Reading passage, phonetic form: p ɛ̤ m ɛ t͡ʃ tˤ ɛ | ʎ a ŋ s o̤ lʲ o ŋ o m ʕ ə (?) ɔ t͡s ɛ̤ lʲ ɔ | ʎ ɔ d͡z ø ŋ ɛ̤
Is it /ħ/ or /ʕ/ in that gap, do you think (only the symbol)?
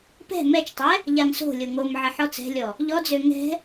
ħ